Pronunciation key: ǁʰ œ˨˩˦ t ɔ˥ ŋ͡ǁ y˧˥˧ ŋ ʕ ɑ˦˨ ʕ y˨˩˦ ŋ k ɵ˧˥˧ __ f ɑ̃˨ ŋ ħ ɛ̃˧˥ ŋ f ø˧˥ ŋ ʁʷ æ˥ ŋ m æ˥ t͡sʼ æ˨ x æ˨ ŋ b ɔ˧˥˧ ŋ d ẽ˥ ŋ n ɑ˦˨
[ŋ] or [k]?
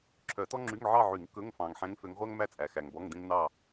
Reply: ŋ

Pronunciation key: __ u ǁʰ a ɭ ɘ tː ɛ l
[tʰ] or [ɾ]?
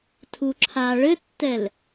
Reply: tʰ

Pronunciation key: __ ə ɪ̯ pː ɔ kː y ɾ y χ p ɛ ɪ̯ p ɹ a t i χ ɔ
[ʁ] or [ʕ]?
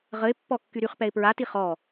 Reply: ʁ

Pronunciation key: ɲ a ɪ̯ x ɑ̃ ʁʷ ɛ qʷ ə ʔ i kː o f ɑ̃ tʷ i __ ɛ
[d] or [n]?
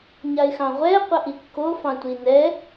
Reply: n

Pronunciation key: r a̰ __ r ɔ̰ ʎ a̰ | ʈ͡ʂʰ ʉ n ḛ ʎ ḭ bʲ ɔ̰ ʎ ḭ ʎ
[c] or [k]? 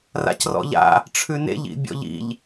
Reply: c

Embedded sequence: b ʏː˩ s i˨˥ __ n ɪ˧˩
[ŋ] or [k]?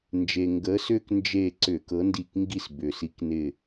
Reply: k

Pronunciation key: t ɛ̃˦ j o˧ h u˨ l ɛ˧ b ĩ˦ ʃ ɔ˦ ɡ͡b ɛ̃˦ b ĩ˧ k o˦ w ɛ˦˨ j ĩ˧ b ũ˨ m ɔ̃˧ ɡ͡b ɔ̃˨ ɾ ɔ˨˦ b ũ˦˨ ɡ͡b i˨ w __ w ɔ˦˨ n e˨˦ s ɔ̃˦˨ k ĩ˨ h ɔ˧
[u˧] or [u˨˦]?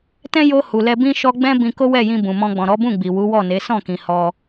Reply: u˨˦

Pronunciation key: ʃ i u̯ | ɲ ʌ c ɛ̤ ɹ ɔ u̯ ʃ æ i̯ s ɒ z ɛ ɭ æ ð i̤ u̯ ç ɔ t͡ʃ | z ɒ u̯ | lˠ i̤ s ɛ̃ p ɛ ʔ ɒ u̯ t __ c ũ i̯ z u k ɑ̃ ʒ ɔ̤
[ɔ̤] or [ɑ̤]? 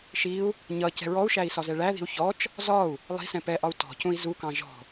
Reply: ɔ̤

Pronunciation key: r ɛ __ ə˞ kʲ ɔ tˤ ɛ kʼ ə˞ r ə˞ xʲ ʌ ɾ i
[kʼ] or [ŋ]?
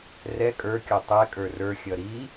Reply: kʼ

